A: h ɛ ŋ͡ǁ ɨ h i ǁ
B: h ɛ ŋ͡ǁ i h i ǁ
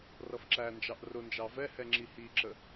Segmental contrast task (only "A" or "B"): B